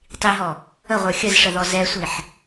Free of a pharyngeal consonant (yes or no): no